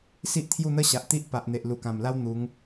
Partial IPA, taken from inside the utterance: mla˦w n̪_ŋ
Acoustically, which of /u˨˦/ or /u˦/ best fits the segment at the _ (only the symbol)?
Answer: u˨˦